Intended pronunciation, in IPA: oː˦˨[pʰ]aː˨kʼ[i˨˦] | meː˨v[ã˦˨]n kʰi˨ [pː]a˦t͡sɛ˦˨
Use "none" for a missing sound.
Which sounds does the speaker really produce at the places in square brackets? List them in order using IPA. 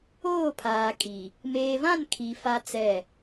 pʰ, i˨, ã˦˨, f

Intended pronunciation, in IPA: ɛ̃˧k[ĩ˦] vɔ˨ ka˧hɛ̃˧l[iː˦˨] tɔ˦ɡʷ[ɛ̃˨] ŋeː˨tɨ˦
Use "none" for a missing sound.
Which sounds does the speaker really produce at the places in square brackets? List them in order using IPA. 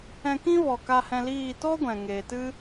ĩ˦, iː˦˨, ɛ̃˨

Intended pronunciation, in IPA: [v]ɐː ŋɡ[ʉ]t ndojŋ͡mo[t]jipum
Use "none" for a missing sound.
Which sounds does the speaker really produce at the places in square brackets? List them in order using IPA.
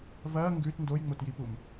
v, ʉ, t

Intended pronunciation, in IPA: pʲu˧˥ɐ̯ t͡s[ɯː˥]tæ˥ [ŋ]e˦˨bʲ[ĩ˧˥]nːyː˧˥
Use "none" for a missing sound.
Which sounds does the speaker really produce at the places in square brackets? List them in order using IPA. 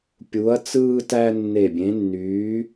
ɯː˥, nː, ẽ˧˥

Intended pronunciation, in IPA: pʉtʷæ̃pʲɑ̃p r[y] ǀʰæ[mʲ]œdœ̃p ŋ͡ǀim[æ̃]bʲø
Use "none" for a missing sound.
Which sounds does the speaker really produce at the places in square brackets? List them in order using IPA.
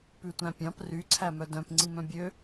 y, m, œ̃

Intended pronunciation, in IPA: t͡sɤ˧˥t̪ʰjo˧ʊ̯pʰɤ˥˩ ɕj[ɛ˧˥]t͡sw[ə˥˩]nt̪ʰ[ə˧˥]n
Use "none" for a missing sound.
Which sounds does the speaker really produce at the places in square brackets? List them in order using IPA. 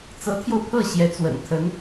ɛ˧˥, ə̰˨˩, ə˧˥

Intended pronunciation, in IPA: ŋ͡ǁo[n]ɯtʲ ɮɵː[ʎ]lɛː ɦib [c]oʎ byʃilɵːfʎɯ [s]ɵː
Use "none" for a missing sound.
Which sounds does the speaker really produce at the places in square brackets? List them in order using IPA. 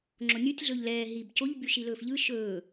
nʲ, ʎ, c, ʃ

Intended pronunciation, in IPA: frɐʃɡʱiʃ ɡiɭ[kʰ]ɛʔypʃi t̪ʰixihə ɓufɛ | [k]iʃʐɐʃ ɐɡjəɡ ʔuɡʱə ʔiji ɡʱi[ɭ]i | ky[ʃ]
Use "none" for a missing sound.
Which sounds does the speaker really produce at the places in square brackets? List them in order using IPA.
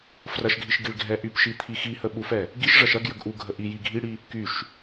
ɡʱ, ɡ, ɽ, ʃ

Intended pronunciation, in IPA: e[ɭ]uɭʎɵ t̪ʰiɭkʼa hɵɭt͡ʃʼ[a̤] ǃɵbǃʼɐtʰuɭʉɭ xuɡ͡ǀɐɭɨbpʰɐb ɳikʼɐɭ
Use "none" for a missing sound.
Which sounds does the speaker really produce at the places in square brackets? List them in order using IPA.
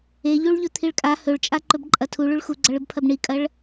ʎ, a

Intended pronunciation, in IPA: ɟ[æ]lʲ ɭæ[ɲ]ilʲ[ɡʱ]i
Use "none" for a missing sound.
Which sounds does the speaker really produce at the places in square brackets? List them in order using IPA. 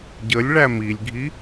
ə, m, ɡʱ

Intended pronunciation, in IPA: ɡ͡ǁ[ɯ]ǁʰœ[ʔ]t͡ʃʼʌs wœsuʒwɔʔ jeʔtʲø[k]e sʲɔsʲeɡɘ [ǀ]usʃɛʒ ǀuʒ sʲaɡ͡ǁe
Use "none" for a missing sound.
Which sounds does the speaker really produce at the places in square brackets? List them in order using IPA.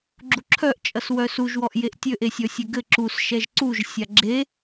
u, ʔ, ʔ, ǁ

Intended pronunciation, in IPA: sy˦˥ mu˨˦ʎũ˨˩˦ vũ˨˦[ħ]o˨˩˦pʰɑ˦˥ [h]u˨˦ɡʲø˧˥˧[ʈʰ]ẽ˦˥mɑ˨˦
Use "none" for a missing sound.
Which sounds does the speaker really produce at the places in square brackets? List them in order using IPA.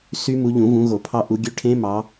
ɣ, ʔ, ʈʰ

